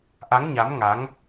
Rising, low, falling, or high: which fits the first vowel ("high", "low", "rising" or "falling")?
rising